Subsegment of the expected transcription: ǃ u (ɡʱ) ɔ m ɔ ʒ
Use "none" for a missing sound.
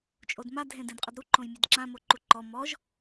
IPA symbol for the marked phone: ǃ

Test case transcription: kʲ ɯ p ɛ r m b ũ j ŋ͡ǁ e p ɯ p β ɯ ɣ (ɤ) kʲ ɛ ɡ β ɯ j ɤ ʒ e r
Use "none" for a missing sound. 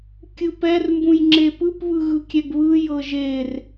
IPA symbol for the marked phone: ɯ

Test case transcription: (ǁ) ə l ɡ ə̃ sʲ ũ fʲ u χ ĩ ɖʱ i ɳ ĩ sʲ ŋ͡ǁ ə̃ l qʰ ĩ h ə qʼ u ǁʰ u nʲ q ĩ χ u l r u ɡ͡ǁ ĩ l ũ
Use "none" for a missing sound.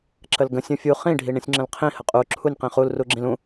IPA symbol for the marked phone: ǁ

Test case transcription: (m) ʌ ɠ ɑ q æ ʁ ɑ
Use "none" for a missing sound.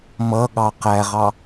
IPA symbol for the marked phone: m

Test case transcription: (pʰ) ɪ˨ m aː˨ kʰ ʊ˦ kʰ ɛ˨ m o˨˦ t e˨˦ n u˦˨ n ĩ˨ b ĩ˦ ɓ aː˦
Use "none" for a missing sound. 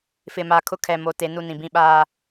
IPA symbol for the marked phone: f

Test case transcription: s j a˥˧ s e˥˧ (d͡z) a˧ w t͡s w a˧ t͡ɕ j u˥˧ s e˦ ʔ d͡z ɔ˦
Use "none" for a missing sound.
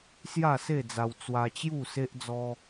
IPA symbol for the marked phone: d͡z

